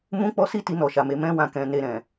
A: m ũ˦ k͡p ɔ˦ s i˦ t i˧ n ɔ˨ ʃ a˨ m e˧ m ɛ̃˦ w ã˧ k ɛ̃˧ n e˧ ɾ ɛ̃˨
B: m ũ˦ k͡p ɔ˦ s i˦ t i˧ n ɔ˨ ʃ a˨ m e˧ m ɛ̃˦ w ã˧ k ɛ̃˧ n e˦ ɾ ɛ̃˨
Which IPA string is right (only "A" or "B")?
A